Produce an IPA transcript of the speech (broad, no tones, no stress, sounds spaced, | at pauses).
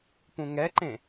p ũ ŋ ɛ ǃ ẽ